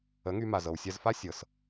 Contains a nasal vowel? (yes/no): no